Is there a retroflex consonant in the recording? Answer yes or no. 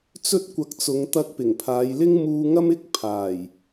no